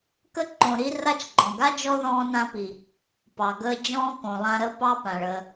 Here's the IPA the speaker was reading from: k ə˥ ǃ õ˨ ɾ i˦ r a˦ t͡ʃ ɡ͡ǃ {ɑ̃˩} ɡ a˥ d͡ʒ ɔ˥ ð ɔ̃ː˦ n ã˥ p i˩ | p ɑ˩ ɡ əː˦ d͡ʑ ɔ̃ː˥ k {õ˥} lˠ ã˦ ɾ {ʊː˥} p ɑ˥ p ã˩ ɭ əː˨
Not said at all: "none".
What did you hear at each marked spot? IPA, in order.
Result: ɔ̃˩, õ˩, əː˥

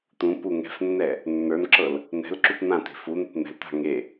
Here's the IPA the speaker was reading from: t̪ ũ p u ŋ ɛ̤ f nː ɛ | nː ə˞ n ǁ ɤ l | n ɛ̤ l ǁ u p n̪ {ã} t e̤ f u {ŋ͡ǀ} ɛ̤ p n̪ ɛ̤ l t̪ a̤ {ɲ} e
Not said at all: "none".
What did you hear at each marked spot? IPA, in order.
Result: ã, n̪, ŋ

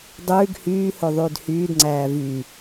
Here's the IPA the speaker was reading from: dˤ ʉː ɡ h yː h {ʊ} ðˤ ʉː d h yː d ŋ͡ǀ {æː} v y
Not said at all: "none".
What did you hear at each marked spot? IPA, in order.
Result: ɵ, æː

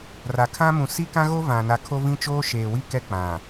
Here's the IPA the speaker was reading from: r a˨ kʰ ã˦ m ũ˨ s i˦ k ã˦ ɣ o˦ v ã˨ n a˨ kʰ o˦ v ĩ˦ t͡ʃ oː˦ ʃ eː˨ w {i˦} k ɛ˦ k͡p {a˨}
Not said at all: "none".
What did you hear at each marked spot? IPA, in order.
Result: i˦, ã˨

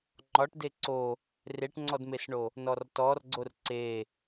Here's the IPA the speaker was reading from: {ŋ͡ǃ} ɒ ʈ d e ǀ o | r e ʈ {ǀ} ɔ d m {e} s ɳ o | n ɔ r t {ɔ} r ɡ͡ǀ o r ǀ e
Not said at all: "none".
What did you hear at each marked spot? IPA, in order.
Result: ŋ͡ǃ, ŋ͡ǀ, e, ɔ

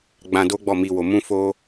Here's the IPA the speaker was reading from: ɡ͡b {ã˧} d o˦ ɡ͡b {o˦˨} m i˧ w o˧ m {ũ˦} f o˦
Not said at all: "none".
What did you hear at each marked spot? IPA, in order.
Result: ã˧, ɔ˦˨, ũ˦

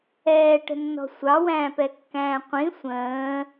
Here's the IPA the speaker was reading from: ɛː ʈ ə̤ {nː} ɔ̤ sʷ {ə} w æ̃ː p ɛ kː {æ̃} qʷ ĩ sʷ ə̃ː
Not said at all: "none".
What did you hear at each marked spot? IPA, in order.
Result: nː, ɑ, æ̃ː

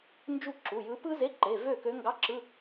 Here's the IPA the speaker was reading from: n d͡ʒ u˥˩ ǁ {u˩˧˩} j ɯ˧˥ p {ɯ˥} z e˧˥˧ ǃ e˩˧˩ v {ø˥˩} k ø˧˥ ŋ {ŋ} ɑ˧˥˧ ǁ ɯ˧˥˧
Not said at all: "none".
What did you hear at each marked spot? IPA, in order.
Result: u˩˧˩, ɯ˥, ø˥˩, ɡ

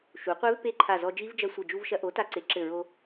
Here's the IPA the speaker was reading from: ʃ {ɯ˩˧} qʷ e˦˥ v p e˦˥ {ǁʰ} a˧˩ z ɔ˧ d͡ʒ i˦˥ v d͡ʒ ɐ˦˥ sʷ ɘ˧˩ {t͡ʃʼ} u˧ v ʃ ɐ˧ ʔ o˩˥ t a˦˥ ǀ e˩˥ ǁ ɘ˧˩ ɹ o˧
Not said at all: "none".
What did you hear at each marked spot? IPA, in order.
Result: u˩˧, ǃʰ, d͡ʒ

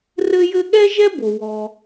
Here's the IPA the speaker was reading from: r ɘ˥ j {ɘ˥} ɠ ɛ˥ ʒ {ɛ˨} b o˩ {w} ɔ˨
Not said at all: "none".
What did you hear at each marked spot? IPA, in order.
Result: ɘ˥, ɛ˥, w

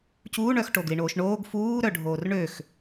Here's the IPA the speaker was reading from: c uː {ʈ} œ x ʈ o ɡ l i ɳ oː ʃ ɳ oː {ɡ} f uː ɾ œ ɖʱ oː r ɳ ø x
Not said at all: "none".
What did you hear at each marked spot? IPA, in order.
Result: ɳ, ɡ

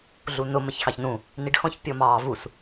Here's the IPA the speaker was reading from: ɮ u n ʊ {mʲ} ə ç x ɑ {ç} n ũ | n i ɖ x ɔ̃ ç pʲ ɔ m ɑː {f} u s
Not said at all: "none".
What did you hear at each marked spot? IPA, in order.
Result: m, ç, v

